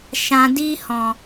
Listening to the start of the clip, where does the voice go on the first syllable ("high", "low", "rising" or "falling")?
low